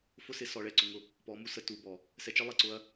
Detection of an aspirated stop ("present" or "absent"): absent